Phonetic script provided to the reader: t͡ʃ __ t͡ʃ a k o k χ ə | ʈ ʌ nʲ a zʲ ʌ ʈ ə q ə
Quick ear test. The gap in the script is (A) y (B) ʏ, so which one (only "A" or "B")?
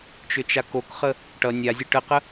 B